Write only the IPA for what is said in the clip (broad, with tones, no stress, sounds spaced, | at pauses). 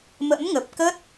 m ə̰˧˥ m ŋ ə˨˩ p̚ k ə˦˥ t̚